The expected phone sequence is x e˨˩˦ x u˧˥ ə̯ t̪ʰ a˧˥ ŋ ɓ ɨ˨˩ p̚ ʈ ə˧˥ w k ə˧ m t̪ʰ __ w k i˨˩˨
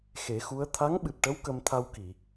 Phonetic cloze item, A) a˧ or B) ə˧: A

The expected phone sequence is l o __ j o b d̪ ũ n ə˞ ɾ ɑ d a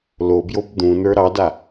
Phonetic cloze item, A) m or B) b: B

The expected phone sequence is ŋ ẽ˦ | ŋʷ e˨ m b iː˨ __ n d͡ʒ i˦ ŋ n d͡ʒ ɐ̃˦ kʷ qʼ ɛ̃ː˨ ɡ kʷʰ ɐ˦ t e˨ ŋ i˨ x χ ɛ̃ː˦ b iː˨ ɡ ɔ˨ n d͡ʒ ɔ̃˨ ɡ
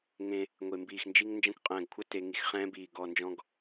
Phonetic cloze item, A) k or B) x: B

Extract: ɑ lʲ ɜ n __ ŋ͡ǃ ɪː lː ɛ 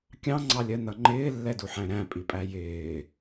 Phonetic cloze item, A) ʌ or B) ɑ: A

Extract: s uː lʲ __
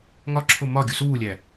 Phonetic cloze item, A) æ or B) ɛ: A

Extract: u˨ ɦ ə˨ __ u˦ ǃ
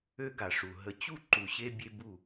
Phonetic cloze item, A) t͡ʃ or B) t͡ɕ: B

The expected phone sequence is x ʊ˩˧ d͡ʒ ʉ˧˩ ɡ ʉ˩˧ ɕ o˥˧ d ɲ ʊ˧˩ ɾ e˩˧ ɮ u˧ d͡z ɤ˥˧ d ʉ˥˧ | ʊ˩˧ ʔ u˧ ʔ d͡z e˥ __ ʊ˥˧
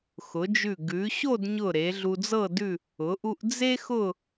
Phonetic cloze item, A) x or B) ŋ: A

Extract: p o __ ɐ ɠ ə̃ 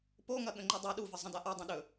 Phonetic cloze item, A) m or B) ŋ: B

